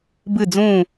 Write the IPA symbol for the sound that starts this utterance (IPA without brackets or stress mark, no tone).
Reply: b